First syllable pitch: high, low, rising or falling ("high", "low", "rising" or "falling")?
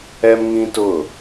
high